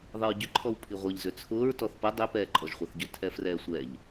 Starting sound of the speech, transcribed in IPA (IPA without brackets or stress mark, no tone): ðˤ